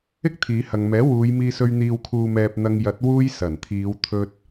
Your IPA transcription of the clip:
ɪ˥k̚t̪ʰiː˨˧hɐ˨ŋmɛː˨˥ wuː˨˧jmiː˧sɵ˧ɥ n̪iː˨wkʰuː˨mɛː˨p̚ n̪ɐ˧ŋjɐ˨˥t̚ wuː˥j sɐ˨˩n t̪ʰiː˨˧wt̪ʰɵ˧t̚

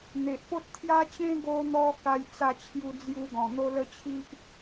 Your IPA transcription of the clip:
n̪e˨ʔpo˦t̚ t̪ʰja˦t͡ɕẽ˦ ɡo˧n̪ɔ˧ ka˧jt͡sa˧t͡ɕʰju˧d͡zju˧ ɡɔ̃˨˩n̪o˦lə˦t͡ɕʰi˦ʔ

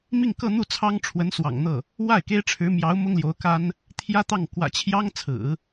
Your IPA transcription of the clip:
mi˥˧ŋkɤ˥˧n̪u˥˩t͡sʰɑ˥ŋ ʈ͡ʂʰwə˧˥nswɑ̰˨˩ŋn̪ɤ˥˩ | wa˥˩ɪ̯ke˥ɪ̯ʈ͡ʂʰɻ̩˧˥mjɑ˧˥ʊ̯ mʊ˥ŋljo˧˥ʊ̯ka˥n | t̪ʰjä˥t̪ɑ˥˩ŋ kwä̰˨˩t͡ɕʰjɑ˥ŋt͡sʰɹ̩˨˩˦

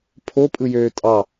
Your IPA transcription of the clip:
pʰopʼɯjøː tʼɑ

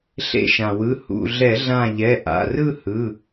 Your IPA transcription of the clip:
ɬḛ˧˩ʃã˩wɯ˩˧˩ hṵ˧˩ɮɛ˧˩˧ɮã˧˩ ʎɛ˩˧˩ʔa̰˩˧˩rɯ˥˧ hɯ˩˧˩

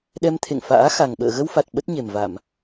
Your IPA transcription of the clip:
ɗɛ˧mt̪ʰḛ˧˨ŋfa̰ː˧˥ xa˨˩ŋɓə̰ː˧˨ ɣə˧wfa˨˩t̚ ɓə˦˥t̚ɲe˨˩mva˧˩˨m

